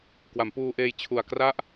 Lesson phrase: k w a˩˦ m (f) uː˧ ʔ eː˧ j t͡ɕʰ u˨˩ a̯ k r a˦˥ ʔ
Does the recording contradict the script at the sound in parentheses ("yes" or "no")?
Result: yes